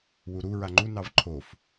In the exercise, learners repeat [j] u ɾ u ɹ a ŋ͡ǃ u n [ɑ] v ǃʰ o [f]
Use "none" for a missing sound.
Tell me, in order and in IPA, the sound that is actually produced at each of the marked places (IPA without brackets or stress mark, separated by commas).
w, ɑ, f